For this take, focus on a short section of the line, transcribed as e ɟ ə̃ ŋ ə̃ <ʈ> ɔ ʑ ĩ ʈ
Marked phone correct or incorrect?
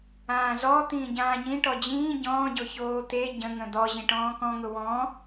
incorrect